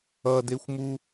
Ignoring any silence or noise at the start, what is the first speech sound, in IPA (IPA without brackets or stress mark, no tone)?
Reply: ʌ